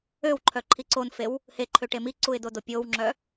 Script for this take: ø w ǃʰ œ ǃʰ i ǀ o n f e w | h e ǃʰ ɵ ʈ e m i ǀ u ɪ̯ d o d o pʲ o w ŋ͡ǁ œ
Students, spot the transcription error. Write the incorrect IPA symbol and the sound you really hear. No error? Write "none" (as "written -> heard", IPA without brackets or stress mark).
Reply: ɵ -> ø